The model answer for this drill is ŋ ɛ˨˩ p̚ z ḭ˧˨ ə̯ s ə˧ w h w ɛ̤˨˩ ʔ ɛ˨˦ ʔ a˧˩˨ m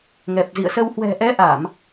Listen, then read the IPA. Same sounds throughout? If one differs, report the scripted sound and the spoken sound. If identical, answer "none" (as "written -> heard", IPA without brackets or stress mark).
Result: none